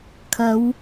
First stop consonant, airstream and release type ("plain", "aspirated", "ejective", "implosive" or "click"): aspirated